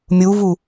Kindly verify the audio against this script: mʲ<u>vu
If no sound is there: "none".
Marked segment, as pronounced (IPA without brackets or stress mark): u